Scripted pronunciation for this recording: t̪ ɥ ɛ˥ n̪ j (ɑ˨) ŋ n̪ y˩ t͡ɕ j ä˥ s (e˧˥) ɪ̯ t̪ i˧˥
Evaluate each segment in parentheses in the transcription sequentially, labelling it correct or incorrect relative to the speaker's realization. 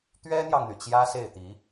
correct, incorrect: e˥˩

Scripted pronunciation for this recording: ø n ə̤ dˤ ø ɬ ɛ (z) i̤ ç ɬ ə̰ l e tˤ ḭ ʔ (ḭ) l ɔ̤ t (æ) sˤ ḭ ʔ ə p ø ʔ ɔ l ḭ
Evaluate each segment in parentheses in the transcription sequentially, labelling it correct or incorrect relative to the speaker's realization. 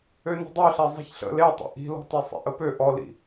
incorrect: zˤ, incorrect: i̤, incorrect: ɛ

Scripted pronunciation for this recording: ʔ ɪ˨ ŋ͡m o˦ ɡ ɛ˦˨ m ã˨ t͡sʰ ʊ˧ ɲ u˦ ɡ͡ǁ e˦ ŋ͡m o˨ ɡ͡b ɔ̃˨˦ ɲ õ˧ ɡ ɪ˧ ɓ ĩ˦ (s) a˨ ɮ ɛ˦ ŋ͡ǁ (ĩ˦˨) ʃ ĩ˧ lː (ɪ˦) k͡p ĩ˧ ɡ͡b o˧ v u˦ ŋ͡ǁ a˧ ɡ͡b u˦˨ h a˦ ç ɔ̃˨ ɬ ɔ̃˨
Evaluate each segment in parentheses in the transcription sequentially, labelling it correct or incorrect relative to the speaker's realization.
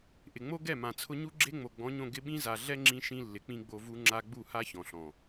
incorrect: z, incorrect: ĩ˧, incorrect: ɪ˨

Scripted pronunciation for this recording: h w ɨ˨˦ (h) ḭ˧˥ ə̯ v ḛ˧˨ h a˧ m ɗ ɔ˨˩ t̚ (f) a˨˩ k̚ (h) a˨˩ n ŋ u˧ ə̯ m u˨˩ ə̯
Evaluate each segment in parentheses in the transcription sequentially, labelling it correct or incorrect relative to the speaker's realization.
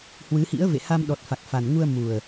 correct, correct, incorrect: f

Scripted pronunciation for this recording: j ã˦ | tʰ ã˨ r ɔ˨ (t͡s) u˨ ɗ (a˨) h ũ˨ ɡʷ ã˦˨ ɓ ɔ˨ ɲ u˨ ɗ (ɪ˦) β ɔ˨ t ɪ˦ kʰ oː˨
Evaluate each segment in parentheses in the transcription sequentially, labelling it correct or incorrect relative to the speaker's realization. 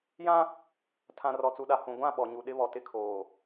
correct, correct, correct

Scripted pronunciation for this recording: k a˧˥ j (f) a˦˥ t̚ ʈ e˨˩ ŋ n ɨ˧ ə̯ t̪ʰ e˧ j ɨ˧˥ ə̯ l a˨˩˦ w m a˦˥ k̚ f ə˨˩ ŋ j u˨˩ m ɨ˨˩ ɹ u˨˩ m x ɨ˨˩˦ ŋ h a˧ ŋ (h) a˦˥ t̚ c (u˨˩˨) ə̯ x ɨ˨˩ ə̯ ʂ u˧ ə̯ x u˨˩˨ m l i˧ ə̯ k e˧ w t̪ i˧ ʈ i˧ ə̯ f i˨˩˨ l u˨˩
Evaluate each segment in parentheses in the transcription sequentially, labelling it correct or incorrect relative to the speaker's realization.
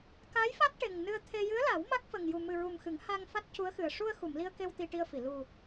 correct, incorrect: f, incorrect: u˧˥

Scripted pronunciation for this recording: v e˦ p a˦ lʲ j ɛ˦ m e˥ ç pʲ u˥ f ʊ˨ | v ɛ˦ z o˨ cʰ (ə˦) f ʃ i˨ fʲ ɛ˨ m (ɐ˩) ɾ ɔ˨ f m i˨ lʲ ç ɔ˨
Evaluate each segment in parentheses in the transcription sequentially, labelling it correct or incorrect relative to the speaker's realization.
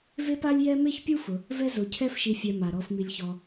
incorrect: ɛ˦, incorrect: a˩

